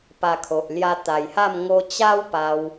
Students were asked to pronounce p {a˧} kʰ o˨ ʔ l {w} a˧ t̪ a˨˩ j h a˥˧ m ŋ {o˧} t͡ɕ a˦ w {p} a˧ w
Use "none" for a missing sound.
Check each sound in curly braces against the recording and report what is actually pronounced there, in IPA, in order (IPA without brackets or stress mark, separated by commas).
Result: a˧, j, o˧, p